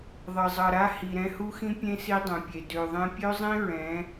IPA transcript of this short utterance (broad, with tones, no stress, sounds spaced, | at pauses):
ðˤ ʌ˨ zˤ ʌ˨ ɾ a˦ h i˨ ɾ ɛ̃˧ h u˦ x ĩ˦ pʲ ẽ˦ s i˦ dˤ ɛ̃˨ pʲ e˨ d ø˨ ðˤ ẽ˧ pʲ ø˦ zˤ ĩ˦ ɹ ɛ̃˨˦